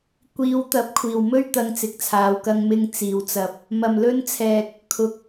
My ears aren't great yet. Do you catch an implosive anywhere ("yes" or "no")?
no